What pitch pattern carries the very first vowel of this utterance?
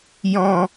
low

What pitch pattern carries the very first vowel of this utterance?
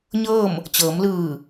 falling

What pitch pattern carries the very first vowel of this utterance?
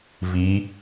rising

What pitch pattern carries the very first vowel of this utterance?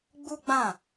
high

